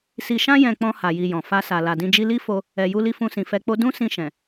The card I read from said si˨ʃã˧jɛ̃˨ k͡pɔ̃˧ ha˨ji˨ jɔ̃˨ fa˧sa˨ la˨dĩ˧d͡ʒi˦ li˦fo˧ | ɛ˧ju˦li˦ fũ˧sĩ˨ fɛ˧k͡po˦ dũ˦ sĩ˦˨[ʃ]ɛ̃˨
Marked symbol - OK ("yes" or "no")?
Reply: yes